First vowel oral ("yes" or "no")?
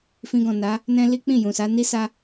no